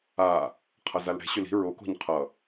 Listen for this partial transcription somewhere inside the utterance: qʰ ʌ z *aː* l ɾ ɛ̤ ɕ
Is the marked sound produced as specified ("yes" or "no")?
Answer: no